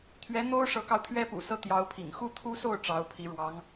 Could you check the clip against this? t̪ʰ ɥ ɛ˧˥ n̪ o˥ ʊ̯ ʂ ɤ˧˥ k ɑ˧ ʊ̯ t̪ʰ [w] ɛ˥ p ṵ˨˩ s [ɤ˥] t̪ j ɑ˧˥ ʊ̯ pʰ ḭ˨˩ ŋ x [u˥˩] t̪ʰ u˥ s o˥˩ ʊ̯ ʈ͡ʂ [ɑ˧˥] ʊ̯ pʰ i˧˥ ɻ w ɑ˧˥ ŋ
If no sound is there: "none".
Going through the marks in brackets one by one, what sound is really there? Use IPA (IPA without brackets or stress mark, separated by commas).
ɥ, ɤ˥˩, u˥˩, ɑ˧˥